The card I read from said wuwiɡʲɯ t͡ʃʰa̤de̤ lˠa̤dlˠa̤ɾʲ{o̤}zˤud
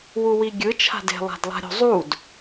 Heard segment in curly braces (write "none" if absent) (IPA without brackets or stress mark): o̤